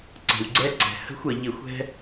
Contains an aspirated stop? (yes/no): no